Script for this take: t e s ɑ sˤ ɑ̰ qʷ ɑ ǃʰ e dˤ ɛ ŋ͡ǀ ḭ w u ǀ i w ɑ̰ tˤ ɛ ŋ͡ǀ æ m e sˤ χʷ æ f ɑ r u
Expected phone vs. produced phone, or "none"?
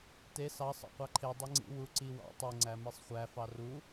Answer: none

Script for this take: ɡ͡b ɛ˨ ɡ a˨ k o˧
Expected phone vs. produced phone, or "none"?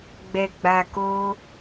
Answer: ɡ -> ɡ͡b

